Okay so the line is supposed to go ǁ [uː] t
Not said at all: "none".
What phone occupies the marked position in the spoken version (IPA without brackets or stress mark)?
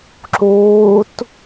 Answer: uː